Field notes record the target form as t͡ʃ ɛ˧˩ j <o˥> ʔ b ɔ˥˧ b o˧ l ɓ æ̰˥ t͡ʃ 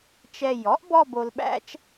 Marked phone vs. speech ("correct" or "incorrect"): incorrect